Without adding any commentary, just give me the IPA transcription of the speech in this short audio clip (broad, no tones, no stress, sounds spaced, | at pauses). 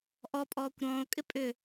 ʔ ɔ pʼ ɔː kʷ ɾ ɔ̃ː o̯ kʼ ɪ pʼ ʏ